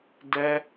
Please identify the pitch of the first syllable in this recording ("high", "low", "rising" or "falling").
high